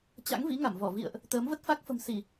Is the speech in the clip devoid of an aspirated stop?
yes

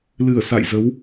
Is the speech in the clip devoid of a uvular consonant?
yes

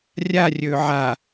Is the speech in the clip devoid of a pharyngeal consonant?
no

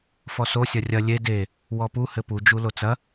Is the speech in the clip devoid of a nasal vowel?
yes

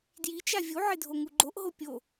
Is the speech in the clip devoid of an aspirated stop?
yes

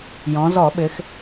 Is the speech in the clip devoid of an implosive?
no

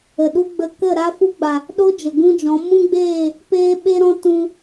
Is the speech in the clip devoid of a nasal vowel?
no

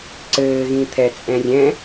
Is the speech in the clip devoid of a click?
no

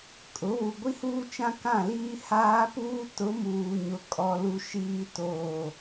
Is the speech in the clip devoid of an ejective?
no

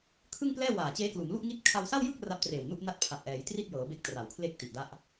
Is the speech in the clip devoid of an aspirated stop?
no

